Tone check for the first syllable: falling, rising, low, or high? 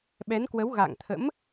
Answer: rising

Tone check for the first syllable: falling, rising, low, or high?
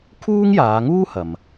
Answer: high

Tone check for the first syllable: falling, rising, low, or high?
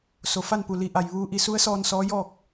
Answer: low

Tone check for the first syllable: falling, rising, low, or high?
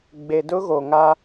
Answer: low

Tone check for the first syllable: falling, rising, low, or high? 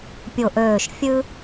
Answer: low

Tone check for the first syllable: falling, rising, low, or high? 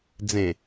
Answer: low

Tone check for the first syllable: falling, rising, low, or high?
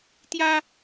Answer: high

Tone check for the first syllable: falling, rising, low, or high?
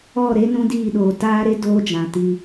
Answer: falling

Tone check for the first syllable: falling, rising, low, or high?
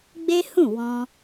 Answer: high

